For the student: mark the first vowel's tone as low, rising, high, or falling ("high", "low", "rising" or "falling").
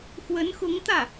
rising